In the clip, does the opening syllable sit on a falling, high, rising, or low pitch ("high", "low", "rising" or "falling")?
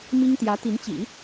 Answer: high